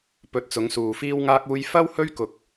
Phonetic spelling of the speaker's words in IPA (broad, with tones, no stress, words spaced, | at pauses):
pɵ˨˥t̚t͡sʊ˨˧ŋsuː˨ fiː˥wŋaː˥k̚uː˥j fɐ˥whɵ˥ɥkʊ˧k̚